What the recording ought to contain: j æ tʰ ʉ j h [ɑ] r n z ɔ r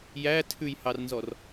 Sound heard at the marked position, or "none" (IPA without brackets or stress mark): ɑ